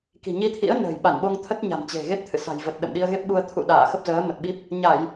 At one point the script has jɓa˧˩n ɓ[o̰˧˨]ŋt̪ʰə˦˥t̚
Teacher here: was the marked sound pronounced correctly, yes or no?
no